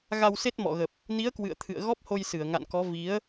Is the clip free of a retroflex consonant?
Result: yes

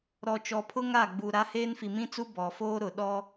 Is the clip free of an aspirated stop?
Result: no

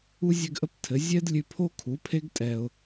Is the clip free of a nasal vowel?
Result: yes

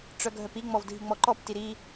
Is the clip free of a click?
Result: no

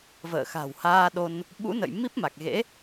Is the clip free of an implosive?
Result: no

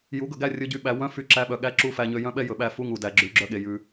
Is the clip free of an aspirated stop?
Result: yes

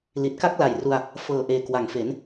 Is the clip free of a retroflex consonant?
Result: yes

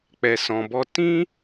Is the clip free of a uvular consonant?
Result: yes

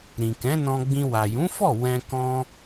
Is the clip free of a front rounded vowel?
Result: yes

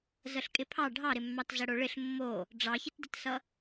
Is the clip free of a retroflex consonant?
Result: no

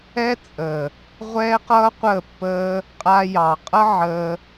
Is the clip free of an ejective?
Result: no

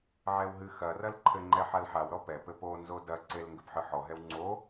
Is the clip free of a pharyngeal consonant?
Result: no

